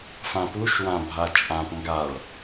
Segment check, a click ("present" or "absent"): absent